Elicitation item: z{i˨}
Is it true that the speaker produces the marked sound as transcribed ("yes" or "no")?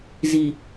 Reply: yes